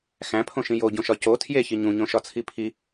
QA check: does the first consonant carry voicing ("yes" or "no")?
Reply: no